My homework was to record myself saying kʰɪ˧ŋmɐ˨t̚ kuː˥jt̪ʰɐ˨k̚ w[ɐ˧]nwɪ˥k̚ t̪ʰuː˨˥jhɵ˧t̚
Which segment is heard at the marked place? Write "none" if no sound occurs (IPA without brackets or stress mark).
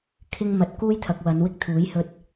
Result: ɐ˨˧